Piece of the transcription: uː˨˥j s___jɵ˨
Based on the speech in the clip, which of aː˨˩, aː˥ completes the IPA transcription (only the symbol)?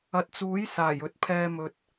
aː˨˩